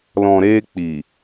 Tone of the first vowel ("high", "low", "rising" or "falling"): low